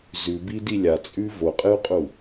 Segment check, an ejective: present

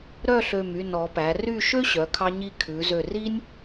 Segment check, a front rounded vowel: present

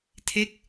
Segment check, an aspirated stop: present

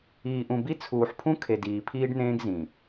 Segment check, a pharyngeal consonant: present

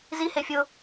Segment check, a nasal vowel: absent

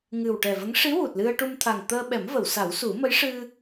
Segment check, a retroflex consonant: present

